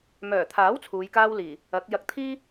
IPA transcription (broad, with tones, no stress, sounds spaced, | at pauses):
m œː˨˩ t̪ʰ aː˨˥ w t͡sʰ uː˨˧ j k aː˥ w l iː˨˩ | ɐ˨˥ k̚ j ɐ˨ k̚ t̪ʰ iː˥